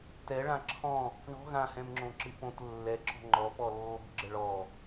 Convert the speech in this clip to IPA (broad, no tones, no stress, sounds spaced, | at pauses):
t ɛ ɭ ã ǁʰ ɔ̃ | ɳ ɔ̤ ɣ ã h ɛ̃ m ŋ͡ǁ õ ǁ ɨ p õ t lː ɛ ǁ ɔ̤ ŋ͡ǃ ɔ p ɔ lː ɔ̤ ɡ͡ǁ ə ɭ ɔ